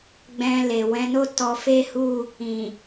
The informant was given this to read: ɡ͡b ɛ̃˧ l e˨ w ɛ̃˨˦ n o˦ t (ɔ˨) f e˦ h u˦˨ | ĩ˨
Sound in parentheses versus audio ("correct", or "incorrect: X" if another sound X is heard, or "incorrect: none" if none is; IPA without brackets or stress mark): incorrect: ɔ˧